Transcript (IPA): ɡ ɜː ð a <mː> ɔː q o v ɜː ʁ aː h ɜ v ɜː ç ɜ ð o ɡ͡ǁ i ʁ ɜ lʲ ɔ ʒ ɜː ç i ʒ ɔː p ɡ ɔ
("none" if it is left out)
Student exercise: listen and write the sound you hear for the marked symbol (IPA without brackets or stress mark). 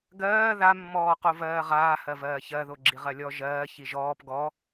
mː